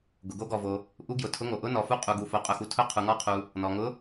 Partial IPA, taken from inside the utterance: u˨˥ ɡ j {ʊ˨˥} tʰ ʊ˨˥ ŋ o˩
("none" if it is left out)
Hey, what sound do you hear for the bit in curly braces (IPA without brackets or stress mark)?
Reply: ʊ˩